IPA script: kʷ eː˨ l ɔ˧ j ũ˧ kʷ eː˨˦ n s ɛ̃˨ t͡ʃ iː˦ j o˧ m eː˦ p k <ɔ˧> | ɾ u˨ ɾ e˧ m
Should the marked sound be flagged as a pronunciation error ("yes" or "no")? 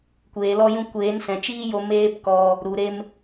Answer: no